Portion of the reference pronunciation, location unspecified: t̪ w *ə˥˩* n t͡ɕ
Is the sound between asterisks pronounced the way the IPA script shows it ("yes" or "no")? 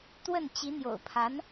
yes